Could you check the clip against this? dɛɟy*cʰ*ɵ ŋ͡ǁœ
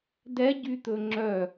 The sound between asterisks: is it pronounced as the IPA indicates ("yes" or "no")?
no